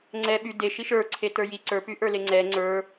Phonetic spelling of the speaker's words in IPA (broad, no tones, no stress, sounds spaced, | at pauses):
ŋ͡ǀ ɛ ɓ y d e ʃ i ʃ ə˞ ǀʰ e t ə˞ j i ǀ ə˞ p y ʔ ə˞ l e ŋ͡ǀ ɛ ŋ͡ǀ ə˞